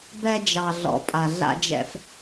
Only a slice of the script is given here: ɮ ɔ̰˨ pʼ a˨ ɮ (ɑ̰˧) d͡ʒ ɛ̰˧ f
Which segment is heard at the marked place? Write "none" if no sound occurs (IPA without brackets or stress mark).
a̰˧